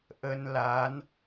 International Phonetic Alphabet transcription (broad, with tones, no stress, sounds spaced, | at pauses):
ʔ ə˧ n l a˨˦ n